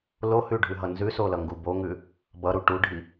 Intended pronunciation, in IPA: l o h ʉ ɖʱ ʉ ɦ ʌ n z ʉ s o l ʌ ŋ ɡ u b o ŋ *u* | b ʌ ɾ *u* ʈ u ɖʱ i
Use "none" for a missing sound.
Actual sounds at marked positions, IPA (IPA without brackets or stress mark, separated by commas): ʉ, u